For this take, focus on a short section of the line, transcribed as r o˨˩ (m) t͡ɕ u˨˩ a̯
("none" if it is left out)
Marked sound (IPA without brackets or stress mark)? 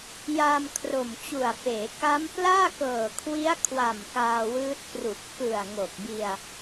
m